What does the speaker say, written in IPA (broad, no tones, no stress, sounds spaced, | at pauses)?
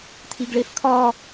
tʰ i ɡ ɭ e f kʰ ɒ